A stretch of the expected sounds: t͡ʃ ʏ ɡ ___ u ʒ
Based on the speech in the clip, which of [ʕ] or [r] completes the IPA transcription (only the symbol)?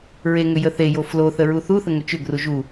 r